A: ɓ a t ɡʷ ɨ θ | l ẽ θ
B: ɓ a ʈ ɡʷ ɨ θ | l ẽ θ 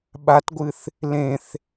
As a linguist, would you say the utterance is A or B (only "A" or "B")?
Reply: A